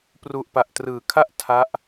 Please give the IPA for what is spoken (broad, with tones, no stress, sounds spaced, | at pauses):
p r u˨˩ ʔ p a˨˩ ʔ t r ɯː˩˦ kʰ a˥˩ ʔ tʰ a˦˥ ʔ